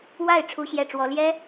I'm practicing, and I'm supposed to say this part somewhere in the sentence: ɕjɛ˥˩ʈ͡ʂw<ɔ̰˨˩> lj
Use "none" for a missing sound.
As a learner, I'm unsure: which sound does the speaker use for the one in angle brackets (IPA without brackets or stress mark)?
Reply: ɔ˥